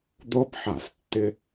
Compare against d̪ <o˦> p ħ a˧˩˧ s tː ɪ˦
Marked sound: correct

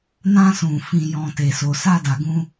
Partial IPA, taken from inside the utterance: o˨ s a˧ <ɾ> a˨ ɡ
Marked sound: incorrect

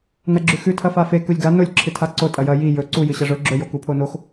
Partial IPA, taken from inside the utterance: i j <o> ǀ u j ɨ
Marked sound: incorrect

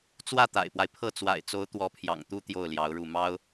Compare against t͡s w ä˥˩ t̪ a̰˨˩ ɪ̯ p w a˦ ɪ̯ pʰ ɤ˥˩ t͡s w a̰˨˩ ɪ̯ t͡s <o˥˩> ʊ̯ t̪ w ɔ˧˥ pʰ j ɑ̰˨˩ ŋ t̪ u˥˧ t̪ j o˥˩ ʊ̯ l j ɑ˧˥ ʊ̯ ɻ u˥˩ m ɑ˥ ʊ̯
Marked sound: incorrect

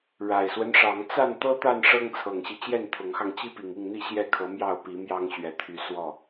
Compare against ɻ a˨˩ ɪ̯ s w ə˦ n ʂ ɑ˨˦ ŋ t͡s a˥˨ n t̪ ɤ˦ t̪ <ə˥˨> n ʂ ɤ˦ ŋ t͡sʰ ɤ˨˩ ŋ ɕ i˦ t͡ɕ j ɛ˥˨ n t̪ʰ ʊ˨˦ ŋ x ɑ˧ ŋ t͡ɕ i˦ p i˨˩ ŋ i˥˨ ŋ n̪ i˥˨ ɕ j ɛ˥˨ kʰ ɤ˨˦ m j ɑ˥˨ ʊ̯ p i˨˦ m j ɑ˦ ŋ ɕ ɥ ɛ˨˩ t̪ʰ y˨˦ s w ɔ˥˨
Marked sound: incorrect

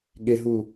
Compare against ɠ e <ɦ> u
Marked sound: correct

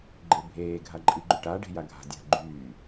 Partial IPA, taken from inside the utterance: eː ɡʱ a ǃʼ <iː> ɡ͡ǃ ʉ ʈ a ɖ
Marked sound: incorrect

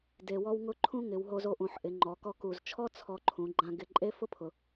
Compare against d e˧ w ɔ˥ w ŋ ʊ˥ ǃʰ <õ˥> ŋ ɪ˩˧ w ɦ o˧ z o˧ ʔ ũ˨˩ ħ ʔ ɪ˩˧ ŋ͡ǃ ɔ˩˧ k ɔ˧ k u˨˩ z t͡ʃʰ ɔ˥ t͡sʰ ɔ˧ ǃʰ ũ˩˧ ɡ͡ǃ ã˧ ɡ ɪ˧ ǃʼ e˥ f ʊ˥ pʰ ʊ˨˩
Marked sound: incorrect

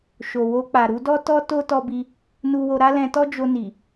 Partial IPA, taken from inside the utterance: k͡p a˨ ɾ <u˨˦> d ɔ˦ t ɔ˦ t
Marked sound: correct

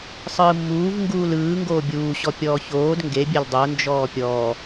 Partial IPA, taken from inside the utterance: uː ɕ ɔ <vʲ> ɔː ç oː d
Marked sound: incorrect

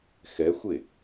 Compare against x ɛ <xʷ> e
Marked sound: correct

